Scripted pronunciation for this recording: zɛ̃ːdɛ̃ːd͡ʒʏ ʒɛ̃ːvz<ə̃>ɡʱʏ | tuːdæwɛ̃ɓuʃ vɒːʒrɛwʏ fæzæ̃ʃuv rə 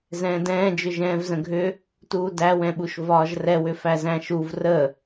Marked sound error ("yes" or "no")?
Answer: no